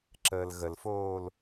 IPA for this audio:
ǁ əː l ɣ ə l f oː l

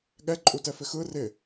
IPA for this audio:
ɠ ɛ ǃʼ u t ɛ f ɪ x ɯ r ɪ

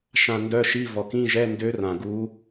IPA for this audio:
ʃ ã˨ n d œ˧˥˧ ʃ i˧˥˧ v ɔ˨ k ĩ˧˥˧ ʒ ɛ˧˥˧ n d ø˦˥ r ã˨ ɡ u˦˥

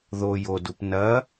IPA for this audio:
ð o j o d u p n ɐ

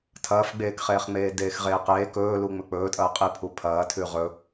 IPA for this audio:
tʰ ɐː f ɡ͡b eː k χ eː χ ŋ͡m eː d eː x ʁ eː q eː k ɵː l u ŋ͡m ɵ k͡p ɵː tʼ ɐː qʼ i pʰ u pʰ ɐː tʰ ʉ ʁ ɵ

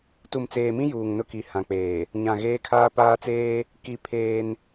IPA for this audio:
t u˨ m t͡s eː˨ m ĩ˦ j uː˨ ŋ n ʊ˦ k i˨ h ã˨ k͡p eː˨ | ɲ ã˨ ɣ eː˦ kʰ aː˦ p aː˦ t͡s eː˦ | k i˦ pʰ eː˦ n

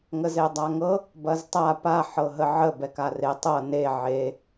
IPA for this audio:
ŋ ə z e dˤ a ŋ ɤ | b ɐ z tˤ a p a ħ ɤ ɦ ə ʕ ə b ɛ k a r e tˤ ɤ n e ʕ e

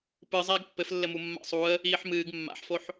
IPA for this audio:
p ɨ zˤ ɛː ɡ pː ɘ f lː ɘ m u mː a̰ sˤ u ə̯ | iː ħ m ɨː ɡ mː a̰ ħ f o ħ

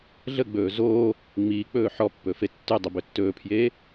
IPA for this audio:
ɮ ə ɡ͡b ɵː z oː | ŋ͡m iː k͡p ɵː ħ ɔ pː ɵ f e tː ʉ dˤ ə b ɵ tː ɵː pʰ j eː

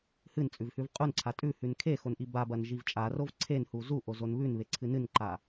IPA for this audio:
h ɨ n t͡sʼ ʉ v h ʉ v qʼ u n ǀʰ a tʼ ʉ h ʉ n kʰ e x o n ʔ i b a b ɐ n ʒ i v t͡ʃʼ a r o v ǀʰ e n h u z u ʔ o z o n β ʉ n β e ǀʰ ɨ n ɨ n ǃ a

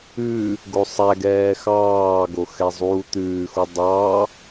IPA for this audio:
ʉ | ɡ o sˤ æ ɡ ɛː x ɑː ɡ o x ɛ zˤ uː t̪ ʉː x u dˤ ɑ

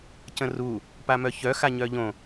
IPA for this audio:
c ə̃ r u | p a m œ ç œ x a ɲ œ ʎ õ

